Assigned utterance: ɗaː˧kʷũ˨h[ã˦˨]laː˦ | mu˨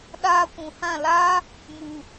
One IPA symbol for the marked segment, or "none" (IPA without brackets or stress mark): ã˦˨